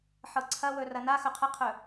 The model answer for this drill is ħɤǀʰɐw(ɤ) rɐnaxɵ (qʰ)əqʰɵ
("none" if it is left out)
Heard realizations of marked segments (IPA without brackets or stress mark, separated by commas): ɵ, qʰ